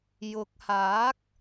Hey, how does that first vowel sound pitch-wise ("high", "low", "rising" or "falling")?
rising